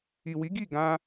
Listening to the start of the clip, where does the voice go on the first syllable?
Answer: low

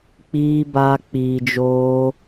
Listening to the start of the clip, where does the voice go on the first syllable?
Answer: high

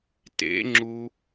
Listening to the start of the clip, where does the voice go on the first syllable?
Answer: rising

